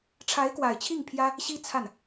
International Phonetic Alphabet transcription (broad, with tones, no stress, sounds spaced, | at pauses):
ʈ͡ʂʰ a˧˥ ɪ̯ k w a˨˩ ɪ̯ t͡ɕʰ i˥˩ ŋ pʰ j ä˥ | ɕ i˥ t͡sʰ a˥˩ n